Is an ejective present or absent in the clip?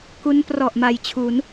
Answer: absent